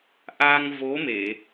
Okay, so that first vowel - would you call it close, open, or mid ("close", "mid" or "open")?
open